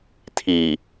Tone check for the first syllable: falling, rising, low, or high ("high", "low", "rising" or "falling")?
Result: low